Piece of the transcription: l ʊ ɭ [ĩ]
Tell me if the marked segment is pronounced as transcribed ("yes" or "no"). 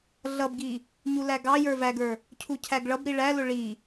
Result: no